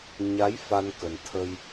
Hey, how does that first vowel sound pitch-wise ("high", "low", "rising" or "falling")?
rising